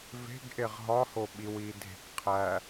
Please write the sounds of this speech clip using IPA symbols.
ve̤ɡ ʔeʁɦɒho ɓiwiː dʱe̤k qʰæ

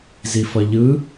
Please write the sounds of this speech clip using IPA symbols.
zifʌʎɯ

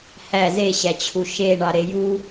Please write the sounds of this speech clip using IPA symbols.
hæ zeɕæt͡ɕʰu ʃeɳɑɾe ju

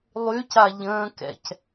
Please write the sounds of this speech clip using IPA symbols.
lˠyca ʎə̃ːkɛ̰c

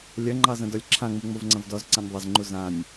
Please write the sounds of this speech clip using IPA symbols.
lʲɐŋ͡ǃɑ zɐ̃dɔlʲǁʰãŋ͡mu ŋ͡movŋ͡ǀɐ̃vdɔzǀãnʲ ðˤɐzŋ͡ǃu zãnʲ

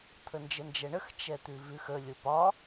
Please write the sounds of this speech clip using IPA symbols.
t̪ʰənd͡ʒənd͡ʒɛɳəx t͡ʃɛt̪ʉvʉx ə lʲopɒ

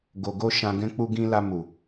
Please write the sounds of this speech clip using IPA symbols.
ɡo˨ɡo˧ ʃã˨ ɡɛ̃˨ k͡pu˨ɡĩ˨la˨ mu˨

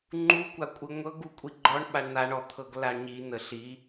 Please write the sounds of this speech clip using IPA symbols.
ŋ͡ǃukʷa kʷʼɯŋʷɤɡ ukʷʼiɡ͡ǃɔɳ ɓaɳn̪aɳɔ t̪ʰɤɡlaɳɲi n̪əɬi

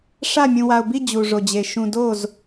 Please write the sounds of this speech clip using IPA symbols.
ʂa˥˧ mʲũ˧wa˧ʊ̯bi˥˧ d͡ʑu˧ʐo˧d͡ʑe˧ ʃũ˧do˥˧z

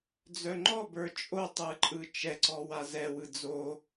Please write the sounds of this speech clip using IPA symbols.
d͡zœŋ͡ǃɔbə˞ t͡ʃʼotˤɯǃʼɯ t͡ʃɛǀɔ wazɛwɯ d͡zo

